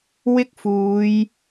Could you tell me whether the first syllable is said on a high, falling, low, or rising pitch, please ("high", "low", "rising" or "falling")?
high